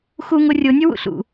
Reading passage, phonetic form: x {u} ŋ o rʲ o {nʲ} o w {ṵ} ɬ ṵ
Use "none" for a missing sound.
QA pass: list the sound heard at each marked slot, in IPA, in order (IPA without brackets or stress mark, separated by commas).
u, nʲ, ṵ